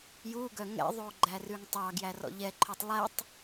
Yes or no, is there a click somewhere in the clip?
yes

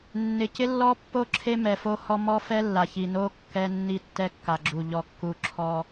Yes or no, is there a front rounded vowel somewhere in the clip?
no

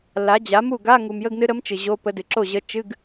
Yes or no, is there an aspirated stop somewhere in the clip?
no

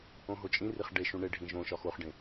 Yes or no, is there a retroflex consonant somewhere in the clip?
yes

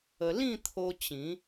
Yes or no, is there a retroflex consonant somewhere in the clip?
no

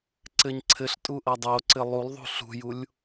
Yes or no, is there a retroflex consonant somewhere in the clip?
no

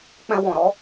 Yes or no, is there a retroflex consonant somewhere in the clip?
no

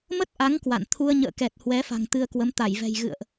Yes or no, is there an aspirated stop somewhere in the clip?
yes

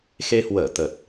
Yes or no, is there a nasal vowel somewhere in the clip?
no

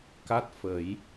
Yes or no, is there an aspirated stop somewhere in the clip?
no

